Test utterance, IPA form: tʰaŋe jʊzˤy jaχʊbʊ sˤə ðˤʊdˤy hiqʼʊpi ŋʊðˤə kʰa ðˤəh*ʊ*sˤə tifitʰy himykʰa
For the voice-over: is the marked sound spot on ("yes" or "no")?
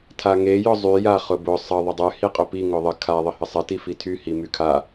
no